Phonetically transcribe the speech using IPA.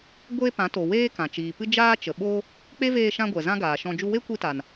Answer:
ɡʷ e˦ p ã˨˦ t o˨ w eː˦ k ã˨ t͡ʃ iː˨ p ɨ˦ d͡ʒ aː˦ t͡ʃ ə˨ ɓ o˦ | k͡p e˦ v eː˧ ʃ ã˧ ɡʷ ɛ˨ z ã˦ ɡ aː˨ ʃ ɔ̃˧ d͡ʒ u˧ w e˦ kʷ i˧ t a˨ n

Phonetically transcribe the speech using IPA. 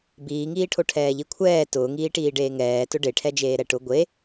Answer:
b iː ŋ iː ʈʰ o ʈʰ ɛː ʎ i kʷʰ ɛː t ʊː ŋ iː ʈ iː ɖ eː ŋ ɛː t ʊ ɖ e ʈʰ ɛ d͡ʒ eː ɾ ɛ ʈ ʊ ɡʷ e

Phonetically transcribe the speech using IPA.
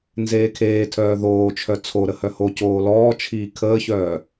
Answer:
n z eː kʰ eː tʰ œː ð oː t͡ʃʰ œ t͡sʰ o ɾ ə h œ h o c oː l ɔː t͡ʃʰ iː kʰ əː ç œː

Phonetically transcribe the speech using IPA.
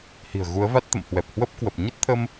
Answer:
h i̤˨˩ ə̯ ɣ u˨˦ ə̯ v a˦˥ t̚ t̪ ə̰˧˨ m h w ɛ˨˩ p̚ h w ə˦˥ p̚ k w ə˨˩ p̚ ɲ ə˦˥ t̚ t̪ʰ ə˧ m

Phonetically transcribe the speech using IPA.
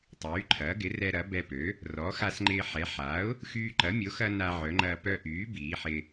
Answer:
tˤ yː˩˥ ǃʰ ɐː˩˥ ɡ ɪ˩˥ r ɛ˧ ɾ ɐ˩˥ b ɛ˧ p ø˩˥ | r ɔ˩˥ x a˧ s ŋ͡ǃ ɪː˧ ħ ɛ˩˥ ħ a˩˥ ʊ̯ | x yː˧ ǃ ɐ˩˥ mʲ o˩˥ x ɐ˧ n a˧ ʕ œ˩˥ ŋ͡ǃ ɐː˧ p œ˧ ʔ yː˩˥ b iː˩˥ ħ ɪ˧

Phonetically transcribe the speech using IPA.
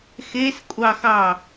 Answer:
x e s kʷʼ ɑ x ɑ

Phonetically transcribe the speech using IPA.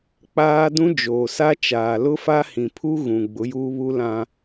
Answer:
k͡p aː˦ d ũ˦ d͡ʒ oː˨ s a˦ t͡ʃ aː˨ l ʊ˦ f a˦ h ĩ˨ pʰ u˦ ɣ ũ˨ ɡ͡b ʊ˨˦ j uː˦ β u˦ l ã˦

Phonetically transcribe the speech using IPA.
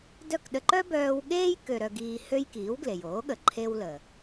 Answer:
d œ˥˩ k ɗ ə˧ ǃ œ˥ b œː˧ w ɠ eː˥ j k ø˧ ɾ œ˧ ɡ iː˧ h ø˥ j k iː˩˥ w ɡ l e˩ j oː˩˥ ɠ ə˩ ǃʰ e˧ w l ə˩

